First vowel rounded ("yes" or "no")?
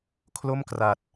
yes